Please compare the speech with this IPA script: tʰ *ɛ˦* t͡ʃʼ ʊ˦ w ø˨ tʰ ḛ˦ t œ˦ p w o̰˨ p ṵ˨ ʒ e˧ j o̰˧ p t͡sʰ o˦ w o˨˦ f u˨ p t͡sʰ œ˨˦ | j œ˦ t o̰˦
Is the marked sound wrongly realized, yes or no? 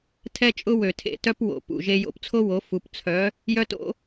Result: no